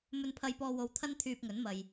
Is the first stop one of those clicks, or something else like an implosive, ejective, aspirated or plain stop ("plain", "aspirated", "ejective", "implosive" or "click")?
aspirated